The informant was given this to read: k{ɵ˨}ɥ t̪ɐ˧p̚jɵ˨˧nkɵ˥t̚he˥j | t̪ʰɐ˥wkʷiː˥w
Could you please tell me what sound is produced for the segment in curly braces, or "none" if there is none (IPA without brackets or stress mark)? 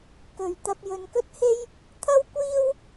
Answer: ɵ˨